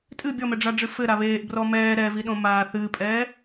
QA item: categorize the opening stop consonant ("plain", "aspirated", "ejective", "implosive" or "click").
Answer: ejective